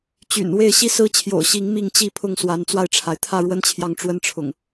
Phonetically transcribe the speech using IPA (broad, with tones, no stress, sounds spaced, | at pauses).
t͡ɕ y̰˨˩ n w e˥˨ ɪ̯ ɕ i˥˨ s ɹ̩˦ t͡ɕʰ j o̰˨˩ ʊ̯ ɕ i˨˦ ŋ m i˥˨ ŋ t͡ɕ i˥˨ pʰ ʊ˥˨ ŋ s w a˨˦ n t͡s w a˧ ɪ̯ ʈ͡ʂʰ a˩ ɪ̯ t̪ʰ ä˥˨ ɻ w ə˦ n t͡ɕʰ j ɑ˨ ŋ ʈ͡ʂ w ə˦ n ʈ͡ʂʰ ʊ̰˨˩ ŋ